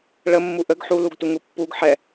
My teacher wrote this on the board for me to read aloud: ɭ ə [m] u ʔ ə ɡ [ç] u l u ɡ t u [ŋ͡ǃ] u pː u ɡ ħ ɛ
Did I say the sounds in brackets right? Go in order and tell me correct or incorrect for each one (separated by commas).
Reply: incorrect, incorrect, incorrect